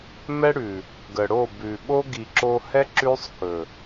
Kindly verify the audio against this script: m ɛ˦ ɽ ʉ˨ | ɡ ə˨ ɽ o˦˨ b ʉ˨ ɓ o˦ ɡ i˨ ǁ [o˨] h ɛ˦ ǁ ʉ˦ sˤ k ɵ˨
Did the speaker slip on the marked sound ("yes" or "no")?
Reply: yes